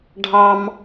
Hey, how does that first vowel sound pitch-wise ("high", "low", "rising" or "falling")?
high